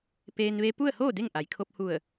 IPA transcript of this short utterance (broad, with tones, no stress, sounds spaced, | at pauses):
p eː˧ n ʋ e˧ p u˥˨ ə̯ h oː˥˨ d e˥˨ ŋ ʔ a˩ j kʰ o˧ p̚ h u˧˩ ə̯